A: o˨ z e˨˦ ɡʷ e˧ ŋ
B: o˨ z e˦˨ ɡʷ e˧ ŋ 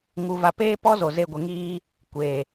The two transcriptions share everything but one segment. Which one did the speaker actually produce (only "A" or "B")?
B